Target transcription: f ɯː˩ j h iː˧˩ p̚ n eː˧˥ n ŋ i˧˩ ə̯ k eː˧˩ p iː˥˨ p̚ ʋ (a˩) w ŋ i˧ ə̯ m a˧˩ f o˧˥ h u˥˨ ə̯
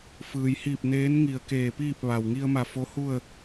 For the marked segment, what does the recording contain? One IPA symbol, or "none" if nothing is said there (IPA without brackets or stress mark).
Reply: a˩